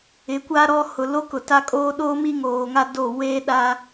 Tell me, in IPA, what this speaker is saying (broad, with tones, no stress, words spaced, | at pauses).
ɪ˨˦kʷa˦ɾɔ˦ hʊ˨lo˦kʊ˨ ta˦kʼoː˦ ɗoː˦ mi˦ŋoː˨ŋa˦ do˦˨ weː˦ ɗa˦